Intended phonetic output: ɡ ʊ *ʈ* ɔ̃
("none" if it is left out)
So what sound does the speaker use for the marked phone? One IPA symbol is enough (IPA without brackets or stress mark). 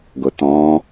t̪